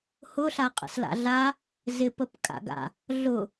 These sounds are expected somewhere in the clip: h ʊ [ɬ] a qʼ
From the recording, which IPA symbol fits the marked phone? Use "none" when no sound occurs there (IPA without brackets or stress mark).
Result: ɬ